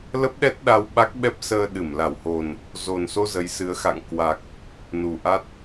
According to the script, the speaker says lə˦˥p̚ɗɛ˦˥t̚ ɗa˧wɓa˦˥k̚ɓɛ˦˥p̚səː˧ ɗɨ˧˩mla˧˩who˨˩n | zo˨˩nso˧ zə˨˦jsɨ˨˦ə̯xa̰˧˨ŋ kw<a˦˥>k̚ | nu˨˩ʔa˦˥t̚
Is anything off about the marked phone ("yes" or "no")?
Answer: yes